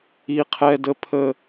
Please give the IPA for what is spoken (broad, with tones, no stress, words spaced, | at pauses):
i˦qʰɛ˦də˦ pʰə˦